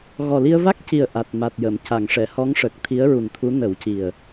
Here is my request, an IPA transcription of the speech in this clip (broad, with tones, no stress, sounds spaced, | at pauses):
ɣ ɔ˨˩ l i˧ ə̯ v a˦˥ k̚ c i˨˩ ə̯ ʔ a˨˩ t̚ m a˨˩ t̚ j ə˨˩˨ m c a˨˩˨ ŋ ʂ ɛ˨˩˨ h ɔ˧˥ ŋ ʂ ə˨˩ k̚ t̪ʰ i˧˥ ə̯ ɹ u˨˩ n t̪ʰ u˧˥ n ə˨˩˦ w c i˨˩ ə̯